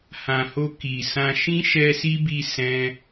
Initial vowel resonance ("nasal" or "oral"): nasal